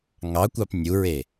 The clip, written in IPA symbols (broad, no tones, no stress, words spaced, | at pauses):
ŋɑkʷɑp nʲuɹe